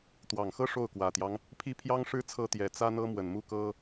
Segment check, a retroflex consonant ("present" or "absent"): present